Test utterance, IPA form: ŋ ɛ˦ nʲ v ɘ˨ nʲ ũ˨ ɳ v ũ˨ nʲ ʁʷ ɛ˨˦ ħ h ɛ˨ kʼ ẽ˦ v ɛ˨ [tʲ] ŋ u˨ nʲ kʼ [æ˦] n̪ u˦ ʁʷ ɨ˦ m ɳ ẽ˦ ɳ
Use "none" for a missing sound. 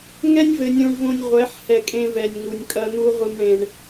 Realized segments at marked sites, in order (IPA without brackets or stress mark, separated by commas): nʲ, ɐ˦